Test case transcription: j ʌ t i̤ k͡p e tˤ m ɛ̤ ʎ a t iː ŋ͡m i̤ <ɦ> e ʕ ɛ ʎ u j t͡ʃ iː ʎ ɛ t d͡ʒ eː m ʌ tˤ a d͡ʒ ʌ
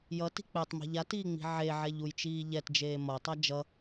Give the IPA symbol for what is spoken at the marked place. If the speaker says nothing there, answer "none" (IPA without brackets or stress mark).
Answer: ʕ